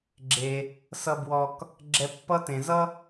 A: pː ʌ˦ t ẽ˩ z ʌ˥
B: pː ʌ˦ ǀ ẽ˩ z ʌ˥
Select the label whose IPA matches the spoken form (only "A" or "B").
A